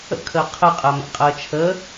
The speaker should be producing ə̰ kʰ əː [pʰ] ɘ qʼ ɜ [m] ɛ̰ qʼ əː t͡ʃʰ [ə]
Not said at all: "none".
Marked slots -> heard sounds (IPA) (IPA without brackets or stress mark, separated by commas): qʰ, m, ə